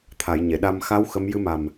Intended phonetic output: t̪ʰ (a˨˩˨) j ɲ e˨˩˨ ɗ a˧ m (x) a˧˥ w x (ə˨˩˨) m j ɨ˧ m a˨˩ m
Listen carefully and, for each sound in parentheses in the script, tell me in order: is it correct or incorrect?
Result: correct, correct, incorrect: ə˧˥

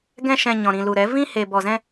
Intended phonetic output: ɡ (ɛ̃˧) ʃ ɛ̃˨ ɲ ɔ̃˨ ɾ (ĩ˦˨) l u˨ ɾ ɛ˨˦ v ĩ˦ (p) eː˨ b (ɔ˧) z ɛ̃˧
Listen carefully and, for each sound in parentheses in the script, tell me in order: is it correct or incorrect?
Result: correct, incorrect: ĩ˨, incorrect: h, incorrect: ɔ˨

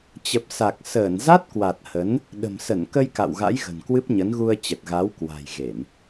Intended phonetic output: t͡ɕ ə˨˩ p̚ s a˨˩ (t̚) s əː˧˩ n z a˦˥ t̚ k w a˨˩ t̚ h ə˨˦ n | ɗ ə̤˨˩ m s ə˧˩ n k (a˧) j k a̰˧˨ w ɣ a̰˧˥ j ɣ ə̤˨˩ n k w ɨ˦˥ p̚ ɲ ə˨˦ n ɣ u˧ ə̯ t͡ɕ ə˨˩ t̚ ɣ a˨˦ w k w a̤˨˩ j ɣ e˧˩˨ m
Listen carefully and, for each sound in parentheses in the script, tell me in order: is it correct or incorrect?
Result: incorrect: k̚, incorrect: ə˧

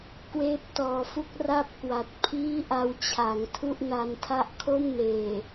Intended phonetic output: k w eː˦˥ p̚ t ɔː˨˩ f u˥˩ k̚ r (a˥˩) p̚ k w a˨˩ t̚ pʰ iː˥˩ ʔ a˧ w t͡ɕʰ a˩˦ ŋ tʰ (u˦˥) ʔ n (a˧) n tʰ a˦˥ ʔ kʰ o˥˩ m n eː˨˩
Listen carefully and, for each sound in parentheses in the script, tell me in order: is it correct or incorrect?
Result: correct, incorrect: u˥˩, correct

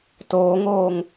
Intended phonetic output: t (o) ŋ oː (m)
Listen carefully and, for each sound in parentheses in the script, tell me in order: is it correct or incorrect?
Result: incorrect: oː, incorrect: ŋ

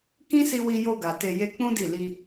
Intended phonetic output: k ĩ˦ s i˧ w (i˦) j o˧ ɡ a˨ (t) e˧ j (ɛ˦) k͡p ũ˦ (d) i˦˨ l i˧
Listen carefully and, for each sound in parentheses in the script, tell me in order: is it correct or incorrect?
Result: incorrect: i˧, correct, incorrect: e˦, correct

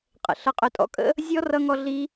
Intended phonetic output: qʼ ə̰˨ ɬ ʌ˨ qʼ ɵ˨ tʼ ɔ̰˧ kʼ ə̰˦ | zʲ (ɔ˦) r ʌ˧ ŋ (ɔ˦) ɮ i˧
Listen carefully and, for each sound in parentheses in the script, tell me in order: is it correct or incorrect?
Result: correct, incorrect: ɔ˧

